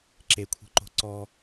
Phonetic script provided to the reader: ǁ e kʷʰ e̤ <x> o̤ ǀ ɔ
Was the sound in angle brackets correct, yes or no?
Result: no